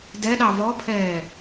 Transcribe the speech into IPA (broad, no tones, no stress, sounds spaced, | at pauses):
d ɛ ɗ ɑ v ɔ pʰ ɛː